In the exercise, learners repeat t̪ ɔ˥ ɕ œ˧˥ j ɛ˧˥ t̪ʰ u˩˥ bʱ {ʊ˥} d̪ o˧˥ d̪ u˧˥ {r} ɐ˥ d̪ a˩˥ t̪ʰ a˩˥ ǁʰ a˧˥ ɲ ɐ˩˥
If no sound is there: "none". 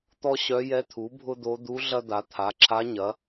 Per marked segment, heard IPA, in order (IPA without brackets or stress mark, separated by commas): ʊ˥, ɮ